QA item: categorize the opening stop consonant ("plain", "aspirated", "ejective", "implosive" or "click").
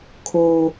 aspirated